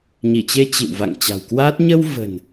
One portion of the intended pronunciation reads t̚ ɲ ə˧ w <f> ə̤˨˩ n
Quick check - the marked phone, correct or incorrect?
incorrect